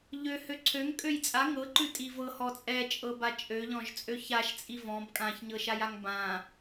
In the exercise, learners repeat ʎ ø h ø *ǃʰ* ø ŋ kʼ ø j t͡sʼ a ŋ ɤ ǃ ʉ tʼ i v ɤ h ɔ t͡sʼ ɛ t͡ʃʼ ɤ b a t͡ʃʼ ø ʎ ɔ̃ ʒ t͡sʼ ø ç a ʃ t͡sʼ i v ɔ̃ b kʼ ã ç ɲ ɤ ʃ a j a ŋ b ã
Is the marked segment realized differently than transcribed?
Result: yes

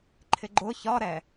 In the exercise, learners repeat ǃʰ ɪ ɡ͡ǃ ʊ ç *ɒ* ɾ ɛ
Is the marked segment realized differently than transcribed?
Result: no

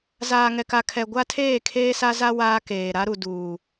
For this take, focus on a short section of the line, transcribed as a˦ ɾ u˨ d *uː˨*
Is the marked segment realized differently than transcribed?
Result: no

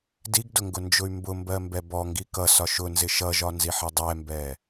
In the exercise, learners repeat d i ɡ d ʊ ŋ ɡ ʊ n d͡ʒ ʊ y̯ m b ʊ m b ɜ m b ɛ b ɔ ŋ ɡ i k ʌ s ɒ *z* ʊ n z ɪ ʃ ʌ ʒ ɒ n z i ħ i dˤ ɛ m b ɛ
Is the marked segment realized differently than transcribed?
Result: yes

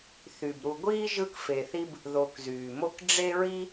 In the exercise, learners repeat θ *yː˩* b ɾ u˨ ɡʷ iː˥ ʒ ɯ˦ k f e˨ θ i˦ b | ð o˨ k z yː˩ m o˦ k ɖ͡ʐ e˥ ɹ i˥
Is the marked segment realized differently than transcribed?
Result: yes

